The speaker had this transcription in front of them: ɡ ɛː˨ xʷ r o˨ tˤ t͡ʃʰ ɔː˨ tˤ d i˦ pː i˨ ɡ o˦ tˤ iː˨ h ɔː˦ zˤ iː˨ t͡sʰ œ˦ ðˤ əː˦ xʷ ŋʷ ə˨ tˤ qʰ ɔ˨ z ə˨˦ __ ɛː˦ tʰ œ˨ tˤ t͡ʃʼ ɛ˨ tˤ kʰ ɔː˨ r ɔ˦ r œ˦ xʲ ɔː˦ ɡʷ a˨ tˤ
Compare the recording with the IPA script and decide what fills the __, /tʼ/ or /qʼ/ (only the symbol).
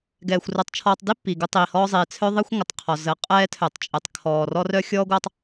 qʼ